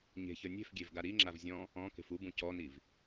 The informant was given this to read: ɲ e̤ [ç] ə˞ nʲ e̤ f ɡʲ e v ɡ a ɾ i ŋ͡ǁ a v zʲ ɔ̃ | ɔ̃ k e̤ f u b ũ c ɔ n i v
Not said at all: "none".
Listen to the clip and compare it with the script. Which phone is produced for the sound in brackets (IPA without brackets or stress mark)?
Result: ç